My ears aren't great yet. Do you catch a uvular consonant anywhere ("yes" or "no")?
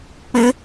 no